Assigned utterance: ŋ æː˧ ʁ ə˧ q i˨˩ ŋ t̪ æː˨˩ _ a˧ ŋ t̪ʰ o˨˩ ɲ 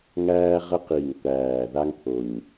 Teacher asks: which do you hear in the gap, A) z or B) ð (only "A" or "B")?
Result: B